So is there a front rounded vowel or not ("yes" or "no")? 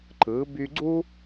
yes